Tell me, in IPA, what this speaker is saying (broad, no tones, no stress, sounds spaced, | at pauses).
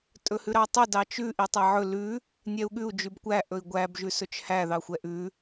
tʼ ɵ h ʉ ɾ ɑ tˤ ɵ d ɑ t͡ʃ ʉ ʔ i tˤ æ ʕ ɵ l ʉ | nʲ ɛ u̯ ɠ ʉ u̯ d͡ʒ ʉ b kʷ æ ʔ ɵ i̯ ɡʷ æ b ʒ ʉ s ɵ t͡ʃ h æ ð ɑ xʷ ɛ ʔ ʉ